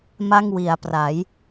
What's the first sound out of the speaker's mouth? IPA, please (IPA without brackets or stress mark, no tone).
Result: m